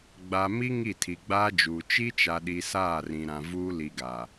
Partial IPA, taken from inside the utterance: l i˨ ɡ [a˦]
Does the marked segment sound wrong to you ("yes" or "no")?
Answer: yes